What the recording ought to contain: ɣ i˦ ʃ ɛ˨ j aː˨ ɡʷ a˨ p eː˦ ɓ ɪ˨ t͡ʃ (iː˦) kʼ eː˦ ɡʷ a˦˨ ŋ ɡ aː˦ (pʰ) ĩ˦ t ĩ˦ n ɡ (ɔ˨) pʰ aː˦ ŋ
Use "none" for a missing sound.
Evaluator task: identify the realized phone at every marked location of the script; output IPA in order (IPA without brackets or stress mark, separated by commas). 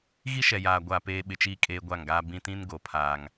iː˦, b, o˨